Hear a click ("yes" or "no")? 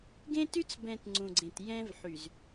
yes